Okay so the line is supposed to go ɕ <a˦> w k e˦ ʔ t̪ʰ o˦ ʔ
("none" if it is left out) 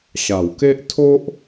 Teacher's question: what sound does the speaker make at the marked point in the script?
a˨˩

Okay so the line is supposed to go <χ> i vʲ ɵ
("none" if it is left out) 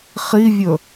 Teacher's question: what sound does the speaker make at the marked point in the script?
χ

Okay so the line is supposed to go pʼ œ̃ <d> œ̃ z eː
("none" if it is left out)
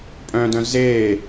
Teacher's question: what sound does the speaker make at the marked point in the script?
d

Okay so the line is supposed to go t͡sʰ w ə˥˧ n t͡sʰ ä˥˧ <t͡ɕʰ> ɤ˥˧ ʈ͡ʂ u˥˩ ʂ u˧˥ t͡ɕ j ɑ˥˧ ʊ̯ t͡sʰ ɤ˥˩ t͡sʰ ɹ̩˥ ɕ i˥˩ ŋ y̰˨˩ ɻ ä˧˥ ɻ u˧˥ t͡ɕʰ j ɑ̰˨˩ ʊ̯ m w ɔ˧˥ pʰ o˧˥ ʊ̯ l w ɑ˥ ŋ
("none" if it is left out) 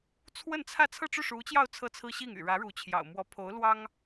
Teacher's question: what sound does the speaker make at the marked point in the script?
t͡sʰ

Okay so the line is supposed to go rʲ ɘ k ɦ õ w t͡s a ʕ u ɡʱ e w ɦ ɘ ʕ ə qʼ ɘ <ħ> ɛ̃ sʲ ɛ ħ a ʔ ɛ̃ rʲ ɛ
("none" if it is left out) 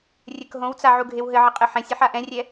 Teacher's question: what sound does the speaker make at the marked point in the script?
ħ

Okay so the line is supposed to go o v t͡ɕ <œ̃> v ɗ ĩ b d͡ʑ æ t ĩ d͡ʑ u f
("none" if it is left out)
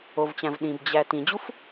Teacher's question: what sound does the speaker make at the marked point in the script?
æ̃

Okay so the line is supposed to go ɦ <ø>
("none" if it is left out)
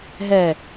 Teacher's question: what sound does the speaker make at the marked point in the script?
ɛ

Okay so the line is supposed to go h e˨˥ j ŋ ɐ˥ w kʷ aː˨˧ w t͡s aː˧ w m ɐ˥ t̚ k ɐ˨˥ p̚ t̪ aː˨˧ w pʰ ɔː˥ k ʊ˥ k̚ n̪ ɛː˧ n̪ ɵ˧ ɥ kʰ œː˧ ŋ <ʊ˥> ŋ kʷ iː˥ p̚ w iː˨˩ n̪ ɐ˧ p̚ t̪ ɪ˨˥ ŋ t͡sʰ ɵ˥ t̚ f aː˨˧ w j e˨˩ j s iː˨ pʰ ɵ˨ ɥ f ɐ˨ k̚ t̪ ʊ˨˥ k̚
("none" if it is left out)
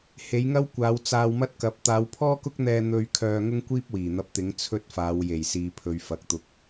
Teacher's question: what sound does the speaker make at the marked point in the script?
ʊ˥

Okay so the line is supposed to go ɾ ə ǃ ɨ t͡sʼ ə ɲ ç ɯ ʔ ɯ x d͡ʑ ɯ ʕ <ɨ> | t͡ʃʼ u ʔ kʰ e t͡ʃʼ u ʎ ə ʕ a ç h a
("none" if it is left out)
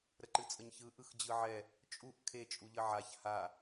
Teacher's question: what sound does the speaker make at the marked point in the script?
ɛ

